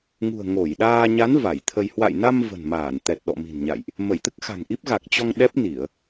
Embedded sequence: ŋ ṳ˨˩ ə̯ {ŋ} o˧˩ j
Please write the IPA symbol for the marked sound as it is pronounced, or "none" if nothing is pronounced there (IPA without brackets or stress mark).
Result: ŋ